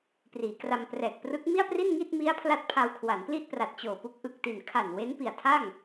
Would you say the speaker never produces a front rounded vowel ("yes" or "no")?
yes